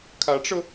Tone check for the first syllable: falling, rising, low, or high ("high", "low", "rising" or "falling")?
rising